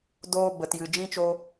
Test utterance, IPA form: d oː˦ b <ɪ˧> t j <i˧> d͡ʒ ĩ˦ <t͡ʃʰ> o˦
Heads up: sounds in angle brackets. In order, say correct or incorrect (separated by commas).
incorrect, incorrect, incorrect